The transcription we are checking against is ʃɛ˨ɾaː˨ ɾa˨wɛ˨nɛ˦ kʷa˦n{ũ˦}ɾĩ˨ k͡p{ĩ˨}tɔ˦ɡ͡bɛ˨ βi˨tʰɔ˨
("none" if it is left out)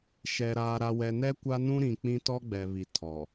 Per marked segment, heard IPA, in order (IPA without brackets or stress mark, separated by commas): ũ˦, ĩ˦